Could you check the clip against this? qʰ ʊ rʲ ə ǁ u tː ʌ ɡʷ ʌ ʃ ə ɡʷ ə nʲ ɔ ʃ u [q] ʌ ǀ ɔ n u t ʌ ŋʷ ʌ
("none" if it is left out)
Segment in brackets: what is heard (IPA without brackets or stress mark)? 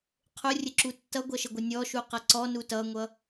q